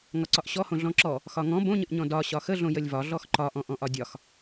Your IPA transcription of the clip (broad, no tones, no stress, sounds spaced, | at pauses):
ŋ ɒ ǀ ɒ ʔ ɕ ɔ h õ ɮ ɔ̃ ǁ ɔ | x ɒ ŋ ɔ̃ b õ ɲ ə ʔ ɲ ɔ̃ d ɒ ɕ ɒ x ə ɮ õ j ə lʲ v ɒ ɮ ɔ x ǃ ɒ ʔ ɔ̃ ʔ ɔ̃ ʔ ɒ dʲ ɒ x